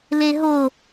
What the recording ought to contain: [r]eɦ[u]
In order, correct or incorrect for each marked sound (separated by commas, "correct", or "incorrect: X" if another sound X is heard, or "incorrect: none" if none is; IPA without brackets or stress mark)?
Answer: incorrect: l, incorrect: o